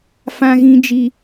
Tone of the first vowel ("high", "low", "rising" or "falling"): high